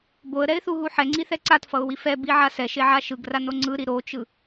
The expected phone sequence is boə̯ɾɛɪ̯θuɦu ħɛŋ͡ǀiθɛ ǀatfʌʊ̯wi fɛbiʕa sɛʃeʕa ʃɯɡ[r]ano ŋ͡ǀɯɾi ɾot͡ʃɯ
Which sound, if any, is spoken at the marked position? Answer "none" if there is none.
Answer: r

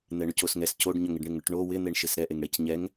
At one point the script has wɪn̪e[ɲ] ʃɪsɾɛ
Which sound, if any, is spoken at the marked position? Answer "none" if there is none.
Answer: ɳ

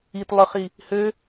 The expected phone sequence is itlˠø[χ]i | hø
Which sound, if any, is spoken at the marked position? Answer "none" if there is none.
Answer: χ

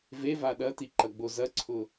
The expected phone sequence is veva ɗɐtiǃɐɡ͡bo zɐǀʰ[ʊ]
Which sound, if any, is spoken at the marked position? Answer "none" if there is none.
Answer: ʊ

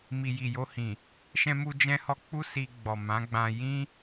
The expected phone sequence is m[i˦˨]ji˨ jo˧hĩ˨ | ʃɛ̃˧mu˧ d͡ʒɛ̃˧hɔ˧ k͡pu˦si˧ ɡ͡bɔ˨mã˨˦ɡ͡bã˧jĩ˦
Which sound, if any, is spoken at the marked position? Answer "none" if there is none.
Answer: i˨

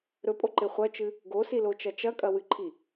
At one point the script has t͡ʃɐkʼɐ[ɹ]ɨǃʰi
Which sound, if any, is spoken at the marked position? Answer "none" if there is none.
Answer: w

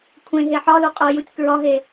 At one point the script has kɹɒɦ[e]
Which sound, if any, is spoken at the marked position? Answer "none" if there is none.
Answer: e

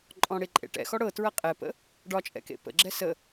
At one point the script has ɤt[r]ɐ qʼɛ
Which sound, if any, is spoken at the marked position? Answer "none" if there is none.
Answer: ɹ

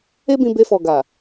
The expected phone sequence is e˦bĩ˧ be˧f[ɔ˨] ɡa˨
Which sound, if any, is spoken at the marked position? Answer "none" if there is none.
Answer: ɔ˨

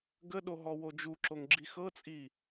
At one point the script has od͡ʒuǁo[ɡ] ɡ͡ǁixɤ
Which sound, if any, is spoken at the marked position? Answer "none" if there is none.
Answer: ŋ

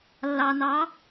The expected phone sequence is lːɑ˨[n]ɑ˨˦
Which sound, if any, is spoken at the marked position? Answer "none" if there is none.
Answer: n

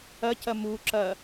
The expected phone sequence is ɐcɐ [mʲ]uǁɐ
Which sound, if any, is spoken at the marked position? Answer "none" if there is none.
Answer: m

